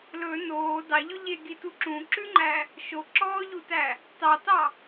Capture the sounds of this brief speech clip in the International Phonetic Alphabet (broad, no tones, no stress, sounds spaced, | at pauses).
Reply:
l ɵ n oː d ɑ ʎ ɵ ʎ e ɡ i t u ǁ ũ ǁ ʉ ŋ͡ǃ æ | ʃ o ǁ ɔː ʎ u t æ | t ɑ t ɑ